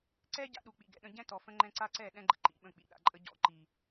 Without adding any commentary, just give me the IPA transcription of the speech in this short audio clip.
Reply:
ǀ ɛ˦ ɟ a̰˦ ɗ u˨ k͡p ḭ˨ ɡ ɛ̰˨ ɗ ə̃˦ ɟ ɛ̃˦ t ɔ˨ f ə̃˦ ŋ͡ǃ ɛ̃˦ ǀ a˦ ǀ ɛ˦˨ ɗ ɛ̃˦ ɡ͡ǃ ə̰˦ ǃ ḭ˨ ɓ ə̃˦˨ k͡p ḭ˨ ɗ a̰˨ ǃʼ ə˦ ɟ ɔ̰˦˨ ǃ i˨

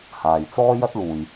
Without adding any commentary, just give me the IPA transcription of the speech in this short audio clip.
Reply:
h aː˨ j t͡s ɔː˥ j ɐ˥ t̚ l uː˨ j

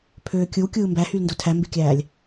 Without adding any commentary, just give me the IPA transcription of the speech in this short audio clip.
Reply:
pʰ øː kʲ ɯ w kʲ ɯː m b æ h y l n d o tʰ æ m b e kʲ æː lʲ

